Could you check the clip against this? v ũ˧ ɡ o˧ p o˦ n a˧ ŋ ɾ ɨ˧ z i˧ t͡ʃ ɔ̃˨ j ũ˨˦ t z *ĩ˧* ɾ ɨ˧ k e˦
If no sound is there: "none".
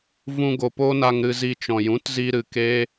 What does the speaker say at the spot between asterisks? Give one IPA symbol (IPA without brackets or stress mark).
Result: i˧